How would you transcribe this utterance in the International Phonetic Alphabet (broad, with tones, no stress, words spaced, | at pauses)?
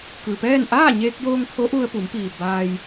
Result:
kɯː˩pɛː˥˨n ʔaː˥˨ɲeː˧k̚joː˧ŋ kʰo˧˥ʔu˧ə̯pu˩˧mpiː˩ baː˧j